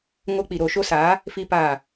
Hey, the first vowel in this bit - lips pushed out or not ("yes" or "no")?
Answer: yes